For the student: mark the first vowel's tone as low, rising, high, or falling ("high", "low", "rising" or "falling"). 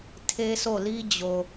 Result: high